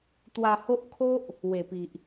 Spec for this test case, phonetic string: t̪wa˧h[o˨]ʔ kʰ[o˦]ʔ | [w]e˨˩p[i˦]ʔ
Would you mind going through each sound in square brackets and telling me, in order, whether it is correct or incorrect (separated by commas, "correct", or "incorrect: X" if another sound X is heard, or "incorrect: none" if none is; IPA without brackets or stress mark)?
incorrect: o˦, correct, correct, incorrect: i˨